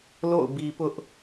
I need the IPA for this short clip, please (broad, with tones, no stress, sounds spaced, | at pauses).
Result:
l o̰˦˨ ʊ̯ b i˨ p ʊ˦ ʔ